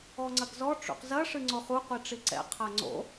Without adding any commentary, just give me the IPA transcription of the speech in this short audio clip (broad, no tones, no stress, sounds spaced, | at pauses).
ɔ ŋ͡ǀ ɐ ɡ z ɔ ʈ͡ʂ ṵ q z ɐ ʂ ɨ ŋ͡ǀ o χ u qʷ i ʈ͡ʂ i ǀ ɛ̰ qʰ a ŋ͡ǀ o̰